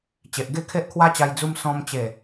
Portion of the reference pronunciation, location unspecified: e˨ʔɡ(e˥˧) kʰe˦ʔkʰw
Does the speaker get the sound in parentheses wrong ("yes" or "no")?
no